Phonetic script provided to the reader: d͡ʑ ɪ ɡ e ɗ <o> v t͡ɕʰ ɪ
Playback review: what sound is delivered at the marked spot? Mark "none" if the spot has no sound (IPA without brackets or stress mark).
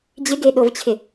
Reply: o